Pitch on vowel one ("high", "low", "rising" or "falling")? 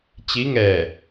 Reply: rising